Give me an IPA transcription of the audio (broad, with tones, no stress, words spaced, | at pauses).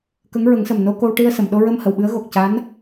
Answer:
kə˧˥ŋɹə˨˩˦ŋsə˨˩m no˧ko˧wʈi˧ə̯ sə˨˩˨mɗo˧ɹə˧m hə˨˩˨wɓɨ˧˥ə̯ ɣo˨˩k̚ ca˧˥n